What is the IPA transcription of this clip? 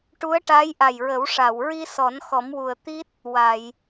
ʈu˧˥ə̯ ʈa˧˥jʔa˨˩jɹə˨˩˦w ʂa˨˩˨w ɹi˧sɔ˨˩˦n xɔ˨˩˦mwu˨˩ə̯ t̪i˦˥t̚ | wa˨˩˨j

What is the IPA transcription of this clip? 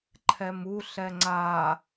ǃʰɛmu ɬɛŋ͡ǀa

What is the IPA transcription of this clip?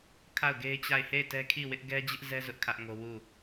kʰa˦˨ʊ̯ɡe˦ɪ̯t͡ɕa˦˨ɪ̯ he˦˨ɪ̯tɛ˦kʰi˦˨wɪ˦ʔ ɡɛ˦d͡ʑɪ˦ʔzɛ˦ zʊ˦ʔkʰä˦ʔŋo˦ wu˦˨

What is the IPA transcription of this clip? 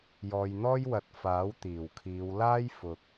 jɔː˨jn̪ɔː˥jwɐ˨t̚ faː˨˥wt̪iː˨˩wkʰiː˨˧w laː˥jfʊ˨k̚

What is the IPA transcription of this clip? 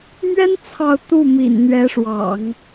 mɥɛ˥n t͡sʰɑ˥˧ʊ̯ t̪u˥˩mḭ˨˩nn̪ɥɛ˧˥ ʂwɑ̰˨˩˦ŋ

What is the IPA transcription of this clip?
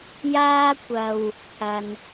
jaː˥kʷɐ˧w | pʰɐ˨n

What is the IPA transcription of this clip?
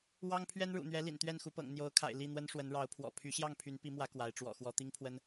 wɑ˦ŋ pʰɥɛ˦nɻṵ˨˩n̪ɥɛ˨˦ lḭ˨˩n t̪ɥɛ˥˨nxu˨˦pɤ̰˨˩ŋ n̪jo˨˦ʊ̯kʰa̰˨˩ɪ̯ li˥˨n̪wə˦n ʂwə˨˦nɻɑ˨˦ʊ̯pʰwɔ̰˨˩ pʰy˨˦ ɕjɑ˥˨ŋpʰy˨˦n pi˨˦mwä˨˦ kwa˨˦ɪ̯ ʈ͡ʂwɔ̰˨˩xwɔ˨˦ t̪i˦ŋpʰwə˦n

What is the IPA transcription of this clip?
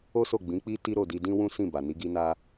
o˦so˦˨ ɡ͡bĩ˨˦k͡pi˦ ti˦ɾo˦˨di˧ dĩ˦wũ˦ sĩ˦˨ ba˨ni˨˦ɡi˦ na˦

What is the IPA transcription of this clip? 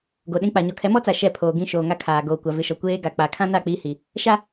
ɡo˨ɗĩ˦k͡pa˨ ɲɔ˨kʰɛ˨˦mɔ˦t͡sa˨ ʃɛ˦˨pʰoː˨ɡĩ˦ ʃoː˨ŋa˦kʰaː˨ ɡoː˨kʷa˨vɪ˨ʃɔ˨ kʷeː˦ ɡa˨k͡pa˨kʰã˦na˦˨ k͡pi˦hi˨ | ʃa˦

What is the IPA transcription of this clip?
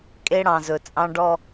kʼe˦ɽɑ̃˨zɵ˨ t͡sʼɑ̃˦ ɖɔ˦

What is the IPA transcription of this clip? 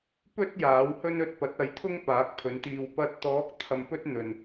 pɵ˥t̚ jaː˨˥whɵ˥n ɵ˧t̚pɐ˨˥t̚ɐ˨˥jt̪ʰʊ˥ŋ paː˨˥k̚pʰɵ˨˥nt̪iː˧w pɐ˧t̚t̪ɔː˨˥k̚ t̪ʰɐ˧mpɵ˥t̚n̪ɵ˨n

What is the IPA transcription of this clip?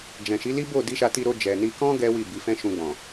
d͡ʒɛ̃˨ʃi˨˦li˦ bo˦˨ di˧ʃa˧ti˧ɾo˧ d͡ʒɛ˨ni˧kɔ̃˦ ɡɛ˦wi˦˨ bi˨˦fɛ̃˦ʃũ˧ɡ͡bɔ̃˨

